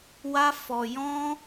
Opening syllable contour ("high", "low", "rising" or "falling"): high